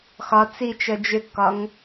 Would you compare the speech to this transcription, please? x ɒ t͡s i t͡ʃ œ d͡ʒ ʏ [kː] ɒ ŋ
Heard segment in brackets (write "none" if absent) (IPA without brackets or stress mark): kː